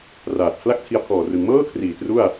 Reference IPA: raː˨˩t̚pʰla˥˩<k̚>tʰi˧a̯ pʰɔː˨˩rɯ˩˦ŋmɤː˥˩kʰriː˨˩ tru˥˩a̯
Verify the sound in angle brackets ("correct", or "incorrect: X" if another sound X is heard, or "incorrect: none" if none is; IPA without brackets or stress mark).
correct